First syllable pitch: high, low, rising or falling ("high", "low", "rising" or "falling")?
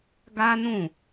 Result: high